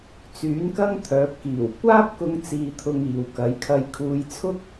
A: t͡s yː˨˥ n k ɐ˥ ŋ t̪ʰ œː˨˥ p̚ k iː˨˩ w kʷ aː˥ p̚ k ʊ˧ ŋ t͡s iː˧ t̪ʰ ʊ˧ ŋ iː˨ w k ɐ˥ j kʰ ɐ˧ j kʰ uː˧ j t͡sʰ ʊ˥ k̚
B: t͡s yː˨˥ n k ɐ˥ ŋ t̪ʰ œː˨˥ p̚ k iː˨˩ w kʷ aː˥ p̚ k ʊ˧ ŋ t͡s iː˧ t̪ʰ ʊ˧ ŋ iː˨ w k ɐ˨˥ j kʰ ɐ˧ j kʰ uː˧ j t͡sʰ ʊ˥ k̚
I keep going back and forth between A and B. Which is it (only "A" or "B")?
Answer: B